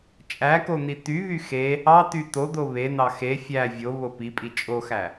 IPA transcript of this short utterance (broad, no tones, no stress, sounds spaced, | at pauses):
t͡ʃʼ æ k o n̪ i t̪ y β y x e | ɑ t̪ y t̪ o d̪ o β e n̪ ɑ x e fʲ æ vʲ o β o p i pʼ i t͡ʃʼ o x æ